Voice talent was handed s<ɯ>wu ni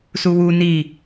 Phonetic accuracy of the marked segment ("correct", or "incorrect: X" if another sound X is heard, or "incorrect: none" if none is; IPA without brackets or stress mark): incorrect: u